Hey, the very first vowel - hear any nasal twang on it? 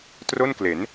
no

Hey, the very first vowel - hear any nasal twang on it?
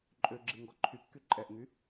no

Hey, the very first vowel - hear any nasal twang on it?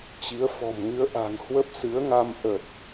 no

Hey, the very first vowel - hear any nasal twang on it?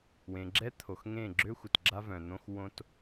yes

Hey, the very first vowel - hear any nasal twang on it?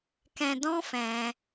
yes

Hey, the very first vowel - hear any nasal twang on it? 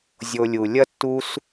no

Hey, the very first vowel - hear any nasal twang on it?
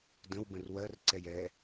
yes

